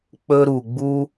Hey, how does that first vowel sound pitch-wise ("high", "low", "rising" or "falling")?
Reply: high